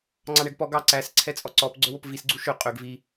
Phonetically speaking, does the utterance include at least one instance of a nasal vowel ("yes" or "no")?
no